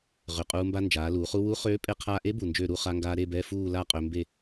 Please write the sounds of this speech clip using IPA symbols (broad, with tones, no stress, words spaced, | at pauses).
ʁʏ˨˩qʼuː˧ mba˧nd͡ʒaː˩˧luː˩˧χu˧ wu˧˥χøː˧˥ pʼe˧qʰaː˧ʔe˧˥ bu˨˩nd͡ʒøː˥˧ɾu˧˥˧ χa˧ŋɡaː˧ ɾe˥˧bɛ˧˥˧ fuː˥˧la˥˧ qʼø˧mbe˥˧